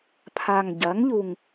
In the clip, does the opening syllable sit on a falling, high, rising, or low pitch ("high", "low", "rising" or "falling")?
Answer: low